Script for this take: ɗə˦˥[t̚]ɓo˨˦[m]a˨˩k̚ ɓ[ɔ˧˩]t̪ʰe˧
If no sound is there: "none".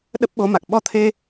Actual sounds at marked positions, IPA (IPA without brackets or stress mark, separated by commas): p̚, m, ɔ˧